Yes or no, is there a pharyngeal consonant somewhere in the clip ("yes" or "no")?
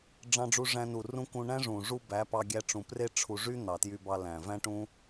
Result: no